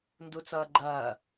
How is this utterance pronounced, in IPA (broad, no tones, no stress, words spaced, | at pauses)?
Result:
ndut͡sʌːɡ͡ǃɐː